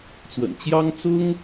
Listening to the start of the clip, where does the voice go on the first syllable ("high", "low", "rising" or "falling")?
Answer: low